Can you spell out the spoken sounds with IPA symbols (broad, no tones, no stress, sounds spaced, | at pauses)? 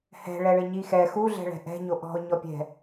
h ɛ̤ ɭ ɛ ɭ ɪ ɲ i x ɛ x u ɮ ɛ̤ ɭ ɛ̤ ʔ ɛ̤ ɲ o ʔ ɔ̤ ʊ̯ ɲ ɔ pʲ ɛ̤